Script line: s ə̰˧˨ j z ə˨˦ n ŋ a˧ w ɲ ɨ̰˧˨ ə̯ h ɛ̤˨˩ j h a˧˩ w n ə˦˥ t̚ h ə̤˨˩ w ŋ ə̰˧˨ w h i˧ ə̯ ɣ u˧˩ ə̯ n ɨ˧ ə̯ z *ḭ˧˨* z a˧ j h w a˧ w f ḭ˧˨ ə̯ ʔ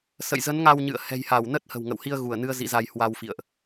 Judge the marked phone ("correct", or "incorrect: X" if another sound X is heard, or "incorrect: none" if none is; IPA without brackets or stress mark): correct